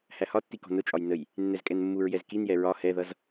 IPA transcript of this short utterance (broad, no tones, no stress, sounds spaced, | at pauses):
h æ h ɒ tː i k ɔ̤ n ʊ t͡ʃʼ ɒ j n ə j | nː ɛ z kʼ ɛ n mː u ɹ j ɛ z k i n j ɛ ɹ ɒ h ɛ ð ʌ z